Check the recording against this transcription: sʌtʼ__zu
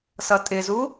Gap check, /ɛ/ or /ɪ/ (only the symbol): ɪ